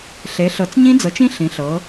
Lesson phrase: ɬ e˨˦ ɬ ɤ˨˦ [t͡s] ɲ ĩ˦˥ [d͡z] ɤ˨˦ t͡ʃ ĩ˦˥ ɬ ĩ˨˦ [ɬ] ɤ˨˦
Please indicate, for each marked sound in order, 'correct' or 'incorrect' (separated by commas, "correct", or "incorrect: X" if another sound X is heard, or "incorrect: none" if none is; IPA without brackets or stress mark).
correct, correct, correct